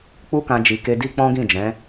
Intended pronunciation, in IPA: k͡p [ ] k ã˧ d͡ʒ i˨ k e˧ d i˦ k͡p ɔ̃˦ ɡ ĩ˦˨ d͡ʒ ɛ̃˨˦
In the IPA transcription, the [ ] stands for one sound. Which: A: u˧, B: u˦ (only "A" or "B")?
B